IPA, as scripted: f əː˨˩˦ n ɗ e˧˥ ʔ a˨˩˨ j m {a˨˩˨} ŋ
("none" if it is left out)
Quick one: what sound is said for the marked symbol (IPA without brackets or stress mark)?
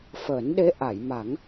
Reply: a˨˩˦